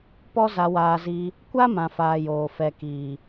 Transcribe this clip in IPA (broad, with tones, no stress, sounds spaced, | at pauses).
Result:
p ɔ˦ z a˧ w aː˧ z i˧ | kʷ a˦ m ã˨ f aː˨ j oː˨ f ɛ˨ k iː˨